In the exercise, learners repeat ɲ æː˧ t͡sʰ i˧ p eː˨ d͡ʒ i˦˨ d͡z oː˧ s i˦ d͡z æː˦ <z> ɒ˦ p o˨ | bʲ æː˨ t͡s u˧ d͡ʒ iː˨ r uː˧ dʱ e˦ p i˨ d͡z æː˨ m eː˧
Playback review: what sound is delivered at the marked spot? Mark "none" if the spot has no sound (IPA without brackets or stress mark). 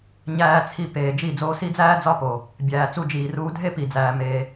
d͡z